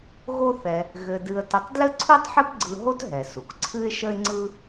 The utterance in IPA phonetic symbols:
ɣ o˥ θ ɛ˧ | ɣ ɘ˧ d ɨ˧ ə̯ t ə˧ tˤ d l ɘ˥ ǀʰ u˥ tˤ ħ ɘ˥ p ɡ͡ǀ ɯ˧ ɦ o˥ t ɦ ɛ˩ s u˩ k ǀʰ ɨ˥ ɪ̯ ʃ ə˥ ɪ̯ ŋ͡ǀ ɯ˥

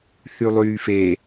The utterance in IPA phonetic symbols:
θ y lˠ yː f e

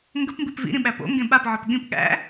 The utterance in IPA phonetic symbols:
ŋ ɡ ə p m b i p v ḭ ɾ ĩ ɓ æ p o̰ ŋ ɡ ẽ ɓ a p ʕ ɔ p ɠ ĩ p ɠ æ̰

